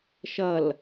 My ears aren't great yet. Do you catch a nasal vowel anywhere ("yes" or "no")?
no